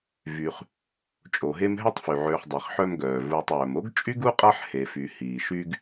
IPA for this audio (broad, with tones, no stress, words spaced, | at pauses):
vy˨χ | t͡ʃʼo˩ɦe˦mɦɛ˥tˤ fy˩ʕøː˨χ dˤi˩χħœ˦mɡœː˩ vuː˨tˤœː˩m o˥ɡt͡ʃʼy˥ɡu˥qʼa˦ħ he˨fy˨ hiː˩ʃy˥ɡ